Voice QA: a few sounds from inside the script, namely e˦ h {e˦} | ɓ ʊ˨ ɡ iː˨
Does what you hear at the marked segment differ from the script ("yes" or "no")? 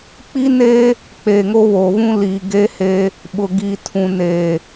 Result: no